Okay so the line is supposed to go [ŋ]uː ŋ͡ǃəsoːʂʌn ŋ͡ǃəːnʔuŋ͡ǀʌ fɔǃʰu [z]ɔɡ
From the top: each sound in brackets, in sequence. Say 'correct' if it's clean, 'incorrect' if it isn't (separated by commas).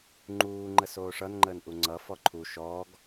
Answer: incorrect, incorrect